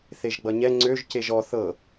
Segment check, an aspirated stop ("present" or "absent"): absent